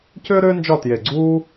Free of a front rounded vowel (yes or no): no